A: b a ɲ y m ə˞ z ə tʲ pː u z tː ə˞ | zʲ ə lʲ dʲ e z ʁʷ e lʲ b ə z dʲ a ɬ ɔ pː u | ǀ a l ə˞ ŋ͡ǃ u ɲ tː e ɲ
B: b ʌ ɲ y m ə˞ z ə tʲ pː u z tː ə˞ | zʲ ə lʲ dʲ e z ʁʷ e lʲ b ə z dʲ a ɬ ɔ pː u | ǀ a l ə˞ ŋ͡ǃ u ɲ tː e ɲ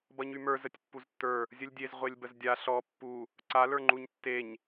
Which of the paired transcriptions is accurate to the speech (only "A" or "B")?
B